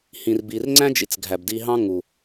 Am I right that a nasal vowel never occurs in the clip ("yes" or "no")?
no